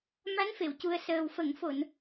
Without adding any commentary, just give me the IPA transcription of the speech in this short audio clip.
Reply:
m a˧˥ n f e˨˩˨ w c u˨˩ ə̯ s əː˨˩ w f ə˨˩˨ ŋ f o˨˩˨ n

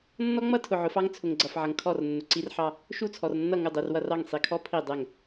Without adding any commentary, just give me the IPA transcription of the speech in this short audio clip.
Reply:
nː ɔ˦ ŋ͡m ʌ˦ tʰ ʊ˨ ʕ ʊ˨˦ f ɑ˦ ŋ t͡sʰ ʊ˨ ŋ ɡ͡ǀ ʌ˨ f ʕ ʌ˨ ŋ kʰ ɔ˦˨ r nː ʊ˨ ǀ i˦ r ħ ɑ˦ | ʃ u˦˨ t͡sʰ ɔ˨ r nː ʌ˦˨ ŋ ʊ˦˨ dˤ i˨ r w ʌ˦˨ r ɑ˦˨ ŋ sˤ i˨ kʰ ɔ˦ pʰ i˦˨ dˤ ɛ˦˨ ŋ

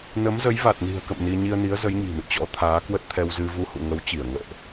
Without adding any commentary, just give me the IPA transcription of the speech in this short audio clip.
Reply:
n ə˨˦ m z ə˨˦ j v a˨˩ t̚ n i̤˨˩ ə̯ k ə̰˧˨ m n i˧ ɲ i˧ ə̯ n i˨˦ ə̯ z ə˨˦ j ɲ i̤˨˩ n ɨ̰˧˨ t͡ɕ ɔ̰˧˥ t̪ʰ aː˨˦ k w ə˦˥ t̚ t̪ʰ ɛ˧ w z ɨ˧ v u˧ h ṵ˧˨ ŋ ə˨˦ w t͡ɕ i˧˩ ə̯ ŋ ə̰ː˧˨ ʔ

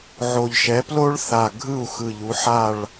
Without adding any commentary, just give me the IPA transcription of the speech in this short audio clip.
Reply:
ʕ o˨˩ ʎ ʃ ɛ˩˥ p l o˥ ɭ θ a˨˩ ɡʱ ɯ˥˩ u̯ x ɯ˨˩ ʎ u˩˧ ħ a˥˩ ɭ

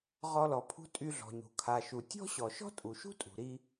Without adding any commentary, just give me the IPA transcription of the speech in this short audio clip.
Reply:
ʁ ɔ˧ l ɔ˩ pʰ ṳ˥ tʼ y˧ ɮ ɔ̤˩ ɲ ṳ˩ kʰ a˩ ʃ u˩ tʲ ɔ̤˥ ɕ ɔ˩ ʃ ɔ̤˥ tʼ u˩ ʃ ṳ˥ tʼ ṳ˩ ɾ i˧

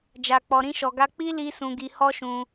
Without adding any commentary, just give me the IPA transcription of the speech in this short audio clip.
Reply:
d͡ʒ a˨ k͡p ɔ˨ ɾ ĩ˧ ʃ ɔ˨ ɡ a˧ k͡p i˦ l i˧ s ũ˧ ɡ i˧ h ɔ˦ ʃ ũ˧

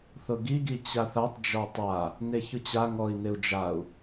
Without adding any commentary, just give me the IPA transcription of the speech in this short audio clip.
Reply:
θ ʊ ɡ i ɡ i t͡ɕ a θ a tˤ d͡ʒ ɔ tˤ a | n e ç ʊ t͡ɕ a ŋ ɔ i̯ n ɪ u̯ d͡ʒ a u̯

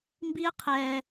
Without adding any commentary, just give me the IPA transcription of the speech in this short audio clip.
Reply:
m b i˦ ə̯ qʰ ɛː˨

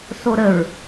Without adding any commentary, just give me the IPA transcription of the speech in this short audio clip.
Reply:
s o ɾ ə ɹ

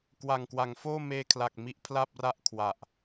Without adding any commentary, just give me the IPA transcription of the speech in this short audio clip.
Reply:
k w a˨˩ ŋ k w a˩˦ ŋ f oː˥˩ m eː˧ kʰ l a˨˩ k̚ m i˦˥ ʔ pʰ l a˥˩ p̚ r a˥˩ ʔ kʰ w a˨˩ ʔ

